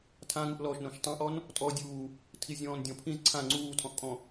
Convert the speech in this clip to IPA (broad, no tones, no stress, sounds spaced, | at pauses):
tʰ ã ŋ u ʔ l ɔː ʃ n õ ʃ tˤ ã ʔ ɔ n | tʼ ɔ dʲ uː | tʰ i zʲ ɔ̃ː n dʲ ɔ̃ pʰ ĩ z ǀʰ ã ŋ͡ǀ uː tʰ ɔ̃ ʔ kʼ ɔ̃